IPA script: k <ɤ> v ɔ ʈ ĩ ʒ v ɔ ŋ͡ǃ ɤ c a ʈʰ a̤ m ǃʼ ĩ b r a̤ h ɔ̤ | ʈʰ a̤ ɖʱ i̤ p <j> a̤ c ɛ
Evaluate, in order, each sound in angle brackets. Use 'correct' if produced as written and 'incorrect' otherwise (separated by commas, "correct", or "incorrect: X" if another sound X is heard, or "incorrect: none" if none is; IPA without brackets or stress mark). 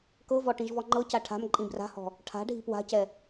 correct, incorrect: w